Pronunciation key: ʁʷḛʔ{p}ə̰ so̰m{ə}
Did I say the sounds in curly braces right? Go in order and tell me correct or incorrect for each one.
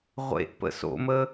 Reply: correct, correct

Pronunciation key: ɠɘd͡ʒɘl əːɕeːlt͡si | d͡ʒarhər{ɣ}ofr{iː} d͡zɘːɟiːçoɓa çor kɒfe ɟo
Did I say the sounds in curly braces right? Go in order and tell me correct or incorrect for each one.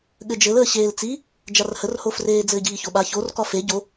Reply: incorrect: h, incorrect: eː

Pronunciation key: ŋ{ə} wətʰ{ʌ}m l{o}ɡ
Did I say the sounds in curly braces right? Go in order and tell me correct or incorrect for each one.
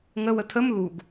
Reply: correct, incorrect: ə, incorrect: u

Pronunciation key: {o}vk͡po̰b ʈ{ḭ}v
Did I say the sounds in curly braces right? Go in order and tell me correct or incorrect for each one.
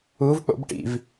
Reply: incorrect: u, correct

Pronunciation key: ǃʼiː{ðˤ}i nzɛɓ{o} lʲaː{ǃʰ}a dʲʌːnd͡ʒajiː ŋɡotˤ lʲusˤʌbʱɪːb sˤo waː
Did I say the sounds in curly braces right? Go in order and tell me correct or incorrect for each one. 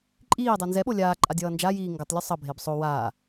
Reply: incorrect: dˤ, correct, incorrect: ǃʼ

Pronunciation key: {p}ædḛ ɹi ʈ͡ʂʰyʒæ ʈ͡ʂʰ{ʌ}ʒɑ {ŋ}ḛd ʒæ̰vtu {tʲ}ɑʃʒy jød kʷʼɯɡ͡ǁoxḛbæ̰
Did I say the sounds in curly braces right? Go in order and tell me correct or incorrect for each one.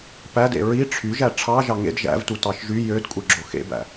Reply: correct, incorrect: ɑ, correct, incorrect: t

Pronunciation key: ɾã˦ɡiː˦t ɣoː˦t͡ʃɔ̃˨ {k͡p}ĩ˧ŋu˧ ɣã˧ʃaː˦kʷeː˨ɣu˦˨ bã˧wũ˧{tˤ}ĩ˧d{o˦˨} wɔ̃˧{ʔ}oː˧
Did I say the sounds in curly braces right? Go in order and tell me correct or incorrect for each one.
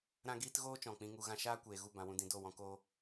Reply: correct, incorrect: d, correct, incorrect: k

